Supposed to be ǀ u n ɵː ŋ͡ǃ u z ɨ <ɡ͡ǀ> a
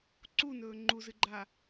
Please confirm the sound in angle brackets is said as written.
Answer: no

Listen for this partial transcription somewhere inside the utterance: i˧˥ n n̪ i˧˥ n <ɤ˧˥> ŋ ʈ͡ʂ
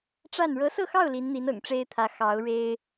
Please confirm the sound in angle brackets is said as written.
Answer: no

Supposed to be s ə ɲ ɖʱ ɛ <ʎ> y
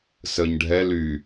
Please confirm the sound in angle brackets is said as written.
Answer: no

